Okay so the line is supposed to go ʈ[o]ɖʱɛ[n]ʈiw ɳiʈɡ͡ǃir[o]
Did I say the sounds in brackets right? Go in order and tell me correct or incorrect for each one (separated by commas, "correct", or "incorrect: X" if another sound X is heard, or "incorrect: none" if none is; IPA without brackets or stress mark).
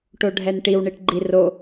correct, correct, correct